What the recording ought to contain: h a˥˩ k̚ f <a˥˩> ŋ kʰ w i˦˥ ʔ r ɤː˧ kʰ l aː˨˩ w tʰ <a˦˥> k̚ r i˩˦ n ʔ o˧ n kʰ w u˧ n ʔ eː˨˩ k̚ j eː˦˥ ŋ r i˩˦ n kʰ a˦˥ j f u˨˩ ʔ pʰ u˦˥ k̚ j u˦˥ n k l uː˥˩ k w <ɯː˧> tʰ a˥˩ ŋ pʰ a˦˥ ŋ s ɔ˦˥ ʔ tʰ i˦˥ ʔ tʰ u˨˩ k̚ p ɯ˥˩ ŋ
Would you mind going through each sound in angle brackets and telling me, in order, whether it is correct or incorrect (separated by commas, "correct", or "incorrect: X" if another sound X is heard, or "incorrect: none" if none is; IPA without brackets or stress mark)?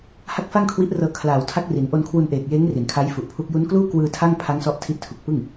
correct, correct, correct